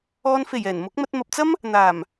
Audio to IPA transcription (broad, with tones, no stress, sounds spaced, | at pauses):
ɔː˧ n f e˨˩ j ɛː˨˩ n m ʊ˨˥ k̚ m ɐ˧ t̚ m ɐ˨ p̚ t͡s ɐ˥ m | n̪ aː˨˩ m